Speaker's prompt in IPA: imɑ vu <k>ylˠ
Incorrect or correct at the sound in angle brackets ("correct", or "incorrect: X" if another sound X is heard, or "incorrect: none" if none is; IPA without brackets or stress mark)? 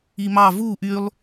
incorrect: ʔ